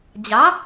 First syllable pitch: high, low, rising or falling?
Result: rising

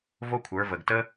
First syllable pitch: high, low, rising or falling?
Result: high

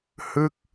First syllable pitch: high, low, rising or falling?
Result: falling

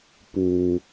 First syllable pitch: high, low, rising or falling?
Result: low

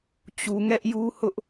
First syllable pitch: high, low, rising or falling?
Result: low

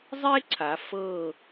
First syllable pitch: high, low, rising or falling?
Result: high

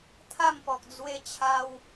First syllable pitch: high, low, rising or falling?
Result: falling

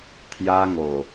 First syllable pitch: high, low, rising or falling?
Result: high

